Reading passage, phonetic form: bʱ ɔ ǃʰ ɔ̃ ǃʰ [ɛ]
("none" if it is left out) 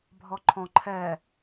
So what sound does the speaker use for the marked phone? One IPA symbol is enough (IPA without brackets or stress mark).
ɛ